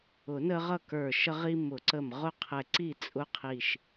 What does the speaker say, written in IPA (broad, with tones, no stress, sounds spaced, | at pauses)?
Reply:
ʊ˨˩˦ n ə˦ ʁ ʌ˥˩ k ə˞˧˩ ʃ ə˦ ʁ i˦ m ʊ˨˩˦ ǀ ə˧˩ m ʁ ʊ˥˩ qʰ ɛ˧˩ ǀ i˥˩ t͡sʼ ʊ˦ qʰ i˧˩ ʃ